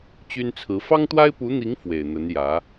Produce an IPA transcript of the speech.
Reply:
t͡ɕ y˥ n t͡sʰ ɹ̩˧˥ f ɑ˥ ŋ t̪ w a˥ ɪ̯ p u˧˥ n̪ i˧˥ ŋ f w e˨˩ ɪ̯ n̪ ə˧˥ n j ä˧˥

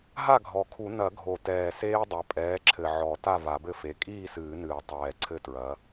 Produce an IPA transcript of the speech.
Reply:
ɦ a˥˨ ɡʱ ɔ˨˩ kʰ u˨˩˦ n ɐ˨˩˦ ɡʱ o˨˩ t ɛː˨˩ s eː˦ dˤ ɐ˩˥ pʼ ɛː˩˥ ǁʰ ɘ˨˩ ʕ ɔ˨˩˦ t a˥˨ v a˨˩˦ b ɘ˥˨ f e˩˥ kʼ iː˥˨ s ɨː˨˩˦ n ɨː˨˩˦ tˤ ɛː˨˩ ǀʰ ɘ˥˨ t ɹ ɐ˩˥

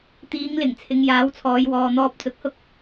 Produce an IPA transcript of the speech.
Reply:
t̪ iː˨˧ ŋ l ɪ˨˩ ŋ t͡sʰ ɪ˨ ŋ j aː˨˥ w t͡sʰ ɔː˨˧ j w ɔː˨ n̪ ɔː˧ p̚ t͡s ʊ˨˥ k̚ h ʊ˥ k̚

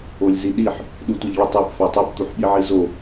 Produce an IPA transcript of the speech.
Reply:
o lʲ z i ɗ i ħ | ɗ u tʷ ə ʎ ɭ ə tˤ i p f ø tˤ ʏ p t̪ u ħ ɓ i ʕ i z o

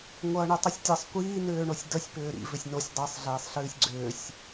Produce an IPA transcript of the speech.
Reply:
ŋʷ ʌː ɳ y tˤ y sʲ tʲ ʌ sˤ kʷ iː n ʏː ɳ o sʲ d ə sʲ p ʏː ɾ ḭ v ʏ sʲ n o sʲ dˤ ɨ sˤ ɮ eː sˤ ɬ ɨː sʲ ɡ͡ǀ ʏː sʲ

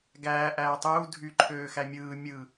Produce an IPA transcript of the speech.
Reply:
ɡ æː ʔ æː tˤ uː dʱ y ǃʰ øː x æ mʲ ɯː mʲ ɯ

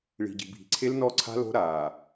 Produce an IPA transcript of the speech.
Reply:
ɭ i̤˨ ɟ i̤˨ bʱ i̤˨ ǀʰ e˦ l n ɔ˦˨ ǀʰ a̤˦ l o̤˦ ɾ aː˨

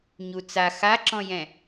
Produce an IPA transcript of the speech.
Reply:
ɲ u t͡s a x a ǁ ɔ̃ j ɛ̃

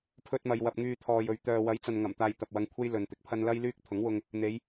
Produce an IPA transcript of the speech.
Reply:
pʰ ɵ˧ t̚ m ɐ˨ j w ɐ˨ p̚ ŋ yː˧ t̪ʰ ɔː˨ j ɵ˨˧ ɥ t̪ œː˨ w ɐ˨˥ j t͡s ɐ˨ n ŋ ɐ˨˩ m t̪ aː˧ j t̪ ɐ˨ p̚ w ɐ˧ ŋ kʷʰ e˥ j l ɵ˨ n t̪ ɪ˨˥ k̚ pʰ ɐ˥ n l ɐ˥ j l yː˥ k̚ t̪ʰ ʊ˨˥ ŋ w ʊ˧ ŋ | n̪ e˨˧ j

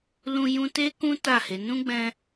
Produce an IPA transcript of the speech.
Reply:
l ũ˧ j ũ˧ t e˦ k ũ˦ t a˦˨ h e˨˦ n ũ˦ ɡ͡b ɛ̃˧

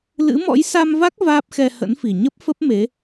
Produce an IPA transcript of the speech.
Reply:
l ɨ̰˧˥ m ɔ̰˧˥ j s a˧ m v a˦˥ k̚ v aː˦˥ p̚ x ɛ˧ h ə̰˧˥ n f i˨˩ ɲ ə˦˥ p̚ f ə˦˥ p̚ m e˨˦

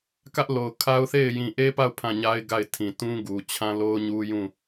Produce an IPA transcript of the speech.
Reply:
k ä˦ ʔ l o˨ ʊ̯ kʰ a˦ ʊ̯ θ e˦˨ ɪ̯ j ĩ˨ ʔ e˦ p a˦˨ ʊ̯ pʰ ã˦˨ ɲ a˦ ɪ̯ ɡ a˦˨ ɪ̯ tʰ ĩ˨ t ũ˦ ɡ u˨ t͡ɕʰ ã˦ l o˦ ʊ̯ ɲ u˦ j ũ˦˨

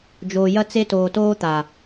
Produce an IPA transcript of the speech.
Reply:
d͡ʒ oː˧ j ɐ˦ t͡s e˦ t oː˧ t oː˦ t̪ a˨

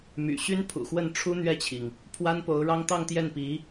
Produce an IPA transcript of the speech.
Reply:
m y̰˨˩ ɕ y˥ n pʰ ṵ˨˩ x w ə˥˩ n ʈ͡ʂʰ u˥ n̪ ɥ ɛ˥˩ t͡ɕʰ i˩ ŋ | pʰ w a˥ n p o˧˥ ʊ̯ ɻ ɑ˥ ŋ t̪ ɑ˥˧ ŋ t̪ j ɛ˥˩ n p i˧˥

